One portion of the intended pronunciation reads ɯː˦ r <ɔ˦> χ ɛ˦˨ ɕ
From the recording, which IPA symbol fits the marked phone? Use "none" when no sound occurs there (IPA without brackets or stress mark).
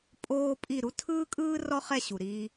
ɔ˦